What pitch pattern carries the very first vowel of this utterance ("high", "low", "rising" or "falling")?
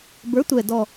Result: rising